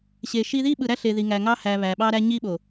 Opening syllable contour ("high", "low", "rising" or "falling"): low